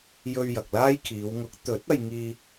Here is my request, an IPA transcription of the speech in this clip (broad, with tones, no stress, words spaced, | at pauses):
jɵ˧ɥ jɐ˨k̚laː˥jkʰiː˨˧w ŋʊ˨˥k̚ t̪ɵ˨˥t̚ ɐ˧jŋiː˧